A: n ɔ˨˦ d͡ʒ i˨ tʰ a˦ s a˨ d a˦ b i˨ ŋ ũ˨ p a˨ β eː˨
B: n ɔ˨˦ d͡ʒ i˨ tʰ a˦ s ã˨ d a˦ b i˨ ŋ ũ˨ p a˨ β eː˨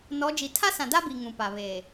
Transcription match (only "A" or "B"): B